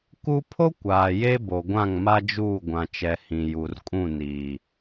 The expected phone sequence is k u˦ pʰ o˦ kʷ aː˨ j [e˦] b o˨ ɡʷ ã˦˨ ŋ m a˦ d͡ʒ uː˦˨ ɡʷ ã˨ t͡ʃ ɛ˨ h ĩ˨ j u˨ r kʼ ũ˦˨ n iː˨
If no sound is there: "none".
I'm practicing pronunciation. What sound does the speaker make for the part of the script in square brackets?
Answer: e˦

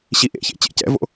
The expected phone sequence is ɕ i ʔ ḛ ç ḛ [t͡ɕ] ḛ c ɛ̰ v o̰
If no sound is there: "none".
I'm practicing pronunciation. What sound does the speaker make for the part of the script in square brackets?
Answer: t͡ɕ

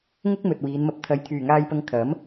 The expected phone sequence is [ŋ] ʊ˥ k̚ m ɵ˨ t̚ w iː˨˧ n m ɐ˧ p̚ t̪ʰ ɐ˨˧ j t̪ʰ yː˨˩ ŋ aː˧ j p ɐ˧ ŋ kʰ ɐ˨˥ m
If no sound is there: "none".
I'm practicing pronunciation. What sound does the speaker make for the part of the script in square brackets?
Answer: ŋ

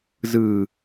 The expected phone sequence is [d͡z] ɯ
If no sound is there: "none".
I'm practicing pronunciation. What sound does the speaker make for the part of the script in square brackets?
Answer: z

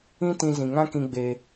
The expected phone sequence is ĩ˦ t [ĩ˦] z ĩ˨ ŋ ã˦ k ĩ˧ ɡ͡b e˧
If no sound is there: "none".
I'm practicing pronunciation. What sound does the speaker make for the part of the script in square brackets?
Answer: ĩ˧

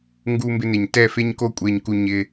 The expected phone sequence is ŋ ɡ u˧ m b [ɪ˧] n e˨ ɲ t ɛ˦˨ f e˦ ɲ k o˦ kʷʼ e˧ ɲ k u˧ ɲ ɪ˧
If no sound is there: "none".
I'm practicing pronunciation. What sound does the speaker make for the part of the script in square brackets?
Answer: ɪ˧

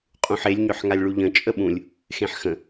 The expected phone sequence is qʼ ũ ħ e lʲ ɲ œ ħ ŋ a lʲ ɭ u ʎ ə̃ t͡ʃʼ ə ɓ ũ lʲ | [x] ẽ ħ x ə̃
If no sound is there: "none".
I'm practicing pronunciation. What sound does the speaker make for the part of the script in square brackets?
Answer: x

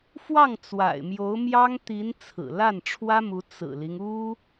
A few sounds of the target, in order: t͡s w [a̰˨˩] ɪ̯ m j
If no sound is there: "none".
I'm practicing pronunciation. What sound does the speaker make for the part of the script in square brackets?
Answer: a̰˨˩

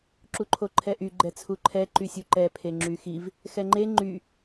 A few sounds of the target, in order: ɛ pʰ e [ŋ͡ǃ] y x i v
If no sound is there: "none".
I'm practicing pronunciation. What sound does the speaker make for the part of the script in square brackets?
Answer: ŋ͡ǁ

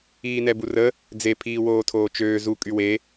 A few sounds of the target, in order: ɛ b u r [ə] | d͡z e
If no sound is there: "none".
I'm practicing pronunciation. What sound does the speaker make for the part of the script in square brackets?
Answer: ə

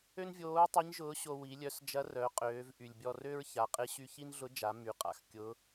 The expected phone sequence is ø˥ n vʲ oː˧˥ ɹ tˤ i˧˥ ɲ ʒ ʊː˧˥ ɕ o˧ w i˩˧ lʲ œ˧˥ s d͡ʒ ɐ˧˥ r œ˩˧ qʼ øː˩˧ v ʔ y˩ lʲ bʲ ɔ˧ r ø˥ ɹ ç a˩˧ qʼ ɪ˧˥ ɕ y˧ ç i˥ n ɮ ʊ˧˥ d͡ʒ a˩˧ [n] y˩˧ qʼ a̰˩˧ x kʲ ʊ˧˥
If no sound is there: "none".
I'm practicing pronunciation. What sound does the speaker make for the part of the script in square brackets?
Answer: m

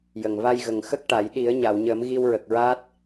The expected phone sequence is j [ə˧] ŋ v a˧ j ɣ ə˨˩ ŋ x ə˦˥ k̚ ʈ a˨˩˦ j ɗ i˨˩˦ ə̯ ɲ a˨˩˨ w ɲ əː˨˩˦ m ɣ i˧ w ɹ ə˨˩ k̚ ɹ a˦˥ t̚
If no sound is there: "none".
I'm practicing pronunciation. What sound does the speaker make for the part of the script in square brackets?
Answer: ə˨˩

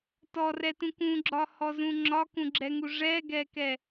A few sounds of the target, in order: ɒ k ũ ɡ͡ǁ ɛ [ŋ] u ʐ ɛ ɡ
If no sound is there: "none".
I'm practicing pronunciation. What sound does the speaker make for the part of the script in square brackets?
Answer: ŋ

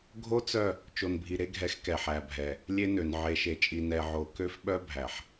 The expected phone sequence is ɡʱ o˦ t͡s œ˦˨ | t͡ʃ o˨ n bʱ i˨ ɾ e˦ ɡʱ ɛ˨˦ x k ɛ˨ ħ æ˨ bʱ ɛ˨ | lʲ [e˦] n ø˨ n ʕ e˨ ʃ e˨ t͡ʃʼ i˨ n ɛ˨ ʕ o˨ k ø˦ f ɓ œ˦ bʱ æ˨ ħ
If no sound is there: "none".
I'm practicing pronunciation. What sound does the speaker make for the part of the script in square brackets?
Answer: e˦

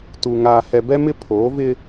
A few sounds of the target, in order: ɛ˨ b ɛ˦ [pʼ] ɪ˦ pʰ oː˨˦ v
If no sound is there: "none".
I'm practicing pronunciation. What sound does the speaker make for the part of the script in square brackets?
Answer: m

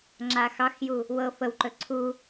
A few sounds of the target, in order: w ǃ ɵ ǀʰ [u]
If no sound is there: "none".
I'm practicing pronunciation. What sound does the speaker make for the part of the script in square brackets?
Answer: u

